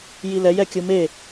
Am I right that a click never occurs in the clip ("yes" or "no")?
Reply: yes